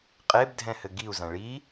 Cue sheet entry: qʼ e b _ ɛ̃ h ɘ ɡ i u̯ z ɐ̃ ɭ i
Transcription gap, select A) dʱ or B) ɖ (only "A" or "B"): A